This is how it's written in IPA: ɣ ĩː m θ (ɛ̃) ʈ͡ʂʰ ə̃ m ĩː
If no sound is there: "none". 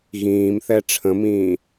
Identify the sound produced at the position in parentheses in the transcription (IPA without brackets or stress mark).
ɛ